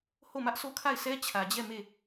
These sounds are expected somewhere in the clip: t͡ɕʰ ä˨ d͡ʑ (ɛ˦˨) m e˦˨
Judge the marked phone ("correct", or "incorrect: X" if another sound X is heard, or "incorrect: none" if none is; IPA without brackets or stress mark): correct